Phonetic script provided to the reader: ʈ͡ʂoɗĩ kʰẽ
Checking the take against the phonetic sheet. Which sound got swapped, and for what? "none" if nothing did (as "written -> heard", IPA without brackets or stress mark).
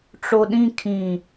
ẽ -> ĩ